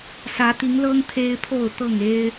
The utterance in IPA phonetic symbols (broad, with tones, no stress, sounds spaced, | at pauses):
s ä˨˦ t̪ i˨˦ ŋ l ɤ˦ ŋ t̪ʰ e˦ ɪ̯ pʰ o˥˨ ʊ̯ t̪ ɤ˥˨ ŋ e˦ ɪ̯